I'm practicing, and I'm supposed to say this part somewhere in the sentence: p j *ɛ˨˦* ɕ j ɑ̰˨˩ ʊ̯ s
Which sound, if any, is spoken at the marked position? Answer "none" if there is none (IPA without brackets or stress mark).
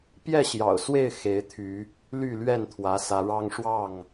ɛ˥˨